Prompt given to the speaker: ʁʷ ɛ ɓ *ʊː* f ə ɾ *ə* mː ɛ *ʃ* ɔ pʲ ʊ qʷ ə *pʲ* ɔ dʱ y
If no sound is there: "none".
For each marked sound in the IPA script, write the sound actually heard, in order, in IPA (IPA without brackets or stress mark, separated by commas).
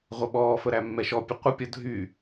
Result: ɔː, æ, ʃ, pʲ